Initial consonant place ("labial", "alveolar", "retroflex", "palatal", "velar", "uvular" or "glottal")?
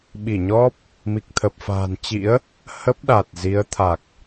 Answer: labial